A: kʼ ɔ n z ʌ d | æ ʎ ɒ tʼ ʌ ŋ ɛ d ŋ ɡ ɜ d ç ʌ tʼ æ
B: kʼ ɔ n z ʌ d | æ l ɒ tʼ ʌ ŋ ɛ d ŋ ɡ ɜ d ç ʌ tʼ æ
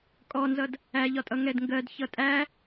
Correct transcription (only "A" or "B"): A